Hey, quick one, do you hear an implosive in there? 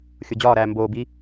no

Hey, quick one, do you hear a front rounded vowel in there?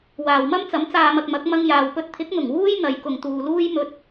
no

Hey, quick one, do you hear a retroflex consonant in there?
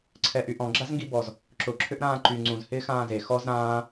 no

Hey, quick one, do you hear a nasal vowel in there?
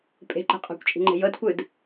no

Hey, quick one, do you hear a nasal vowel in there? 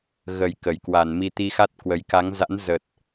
no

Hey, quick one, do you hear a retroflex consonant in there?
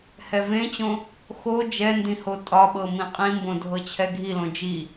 no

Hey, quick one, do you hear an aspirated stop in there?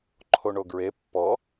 yes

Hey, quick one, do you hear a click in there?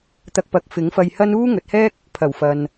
no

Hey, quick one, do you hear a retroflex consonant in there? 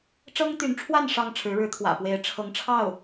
yes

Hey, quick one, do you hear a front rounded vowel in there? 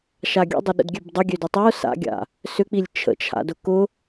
yes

